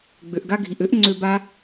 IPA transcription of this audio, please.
ɡ͡b ø˩ ʔ ɡ a˦ ɡʱ i˩ ʔ ø˥ ʔ ŋ͡ǀ ø˦ b a˥

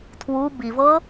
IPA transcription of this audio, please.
tʰ w u b i v ɤ

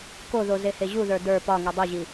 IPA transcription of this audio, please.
k o ð o z e h e ʑ u ð ə˞ d ə˞ p ɒ ŋ i dˤ i ʑ i

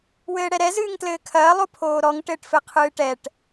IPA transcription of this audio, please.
w ɘː ɽ ɛ ɾ ɛ z ɨː ŋ t l ɘː kʰ ɐː lˠ o pʰ oː ɾ ɔ ŋ ʈ ɘː ʈ f ɘ qʰ ɨː ʈ ɛ ʈ

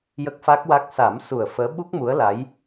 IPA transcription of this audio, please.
j ə˦˥ k̚ f a˦˥ k̚ w a˦˥ k̚ s a˨˩˦ m s u˨˩ ə̯ f əː˧˥ ɓ u˦˥ k̚ m u˧˥ ə̯ l a˧˥ j

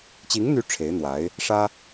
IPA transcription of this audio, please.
t͡ɕ i˧˥ ŋ n̪ y˧˥ ʈ͡ʂʰ e˧˥ ɪ̯ n̪ w a˧˥ ɪ̯ | ʂ ä˥

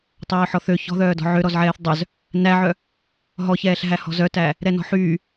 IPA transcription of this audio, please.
tˤ œː ħ ɔ θ ø ç ɔ̤ ð œː d ɔ̤ ʕ ø ɾ ɔ z ʕ ɛː θ dˤ œ z | n æ ʕ œ | ɦ ɔ ç ɛː ɬ ɦ æ h ɔ̤ z œ t æ | ɾ ɛ n ɔ̤ ħ yː

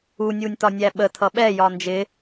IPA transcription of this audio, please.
u nʲ u nʲ t ɒ nʲ æ ɓ ə tʰ ʌ ɓ ɛ j ɒ n d͡ʒ ɪ

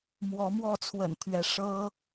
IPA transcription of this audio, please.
m w ɔ˨˦ m w ɔ˥˨ t͡sʰ w ə̰˨˩ n t̪ʰ ɥ ɛ˨˦ ʂ ɤ˦

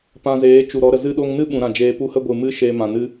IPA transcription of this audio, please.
p ã˧ z eː˨˦ t͡ʃ u˨ ɾ ɔ˨˦ ɾ ə˨ z ɨ˧ ɗ o˧ ŋ n ɨ˦ ɓ ũ˧ ɾ ã˦˨ d͡ʒ eː˧ p u˦˨ h ə˦ ɡʷ ɨ˨ m ɨ˦ ʃ eː˧ m ã˨ n ɨ˦

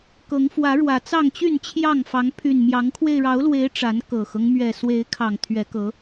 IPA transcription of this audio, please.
k ɤ˨˦ ŋ f w ä˨˦ ɻ w ä˨˩ t͡s ɑ˥˨ ŋ t͡ɕ y˥˨ n t͡ɕʰ j ɑ˥˨ ŋ f ɑ˨˦ ŋ pʰ y˨˩ n m j ɑ˨˦ ŋ kʰ w e˧ ɪ̯ ɻ ɑ˨˦ ʊ̯ l w e˨˦ ɪ̯ ʈ͡ʂ a˨˦ n k ɤ˨˩ x ɤ˦ ŋ m ɥ ɛ˨˩ s w e˨˦ ɪ̯ kʰ ɑ˨˩ ŋ t̪ʰ ɥ ɛ˨˦ k ɤ˨˦

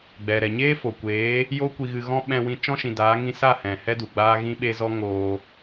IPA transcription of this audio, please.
ɡ͡b ɛ˨ ɾ ɛ˨ ɲ eː˦ f o˨ kʷ eː˨˦ | j o˦ kʷ i˧ ɣ ɨ˧ ɣ ɔ̃˦ ɓ ɛ̃˧ w ĩ˧ t͡ʃ ɔ̃˦ ʃ ĩ˨ d aː˨˦ ŋ ĩ˧ s a˦˨ h ɛ̃˨ h ɛ˦ d u˨ ɡ͡b aː˦ ɣ ĩ˦ ɓ e˦ z ɔ˦ ŋ oː˧

